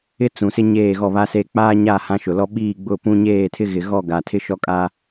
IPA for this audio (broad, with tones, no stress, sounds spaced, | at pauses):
ɪ˦ t͡s ũ˨ s ɪ˦ ɲ eː˦˨ ɣ ɔ˦˨ β a˦ s eː˦ k͡p aː˦ ɲ a˦˨ h ã˦ ʃ ʊ˨ l ɔ˦ ɓ iː˦˨ ɡ͡b ʊ˦˨ p ũ˦ ɲ eː˦˨ tʰ ɪ˦ ɣ ɪ˨ ɣ ɔ˦˨ ɡ a˨ tʰ ɪ˦ ʃ ɔ˦ kʼ a˦